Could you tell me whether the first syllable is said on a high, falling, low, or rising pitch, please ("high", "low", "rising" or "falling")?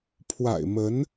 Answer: low